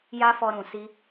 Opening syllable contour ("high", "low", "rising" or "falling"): high